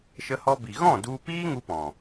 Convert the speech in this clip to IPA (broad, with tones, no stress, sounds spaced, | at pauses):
ʃ ə˧ h ɔ˧ b i˨ ɣ ɔ̃˦˨ d u˧ p iː˦ ŋ u˦ p ɔ̃˨